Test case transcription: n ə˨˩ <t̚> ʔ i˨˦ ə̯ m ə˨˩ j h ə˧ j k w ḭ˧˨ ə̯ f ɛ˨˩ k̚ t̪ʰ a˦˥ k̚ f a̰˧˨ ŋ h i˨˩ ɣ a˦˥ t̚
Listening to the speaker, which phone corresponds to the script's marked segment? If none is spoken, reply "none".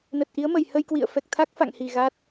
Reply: t̚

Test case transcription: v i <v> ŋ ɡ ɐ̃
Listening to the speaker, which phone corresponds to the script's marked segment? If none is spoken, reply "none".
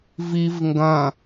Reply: v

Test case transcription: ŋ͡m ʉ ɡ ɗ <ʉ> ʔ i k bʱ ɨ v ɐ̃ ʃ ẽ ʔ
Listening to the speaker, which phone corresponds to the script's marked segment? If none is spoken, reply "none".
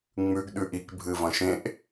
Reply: ʉ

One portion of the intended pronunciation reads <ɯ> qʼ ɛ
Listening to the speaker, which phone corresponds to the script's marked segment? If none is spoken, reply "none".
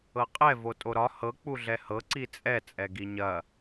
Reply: ɤ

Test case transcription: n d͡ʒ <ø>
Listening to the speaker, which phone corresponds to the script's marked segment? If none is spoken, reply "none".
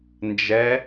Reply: ɛ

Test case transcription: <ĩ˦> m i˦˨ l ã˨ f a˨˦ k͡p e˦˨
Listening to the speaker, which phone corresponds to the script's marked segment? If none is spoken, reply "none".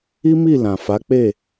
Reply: i˦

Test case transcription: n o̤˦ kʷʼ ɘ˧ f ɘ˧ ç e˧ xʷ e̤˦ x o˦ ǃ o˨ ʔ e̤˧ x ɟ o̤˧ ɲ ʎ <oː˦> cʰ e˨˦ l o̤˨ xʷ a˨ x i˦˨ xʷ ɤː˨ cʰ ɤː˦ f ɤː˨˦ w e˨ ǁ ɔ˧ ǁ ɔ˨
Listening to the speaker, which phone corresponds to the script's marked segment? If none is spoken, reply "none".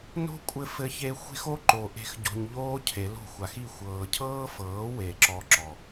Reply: oː˦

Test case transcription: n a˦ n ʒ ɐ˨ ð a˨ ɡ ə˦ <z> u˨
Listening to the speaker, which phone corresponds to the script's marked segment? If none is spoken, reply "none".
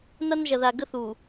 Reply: θ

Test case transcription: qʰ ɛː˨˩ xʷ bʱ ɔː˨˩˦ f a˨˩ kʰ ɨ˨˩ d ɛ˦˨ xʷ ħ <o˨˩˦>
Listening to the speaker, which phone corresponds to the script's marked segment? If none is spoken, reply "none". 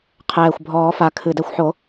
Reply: o˨˩˦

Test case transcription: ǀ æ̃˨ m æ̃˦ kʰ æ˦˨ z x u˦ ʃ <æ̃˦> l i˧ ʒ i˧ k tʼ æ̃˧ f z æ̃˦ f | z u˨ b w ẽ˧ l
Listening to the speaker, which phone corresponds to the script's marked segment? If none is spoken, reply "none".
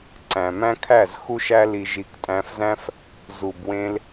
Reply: æ˦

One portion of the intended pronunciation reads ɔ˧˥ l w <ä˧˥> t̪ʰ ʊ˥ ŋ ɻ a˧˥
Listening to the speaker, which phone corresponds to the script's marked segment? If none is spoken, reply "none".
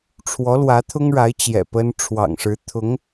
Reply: ä˧˥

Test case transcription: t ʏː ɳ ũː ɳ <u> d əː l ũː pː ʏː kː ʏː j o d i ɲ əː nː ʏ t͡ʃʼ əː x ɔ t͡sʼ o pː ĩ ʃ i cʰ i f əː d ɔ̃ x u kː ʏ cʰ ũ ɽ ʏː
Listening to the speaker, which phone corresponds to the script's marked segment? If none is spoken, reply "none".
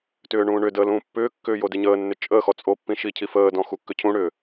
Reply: ʏ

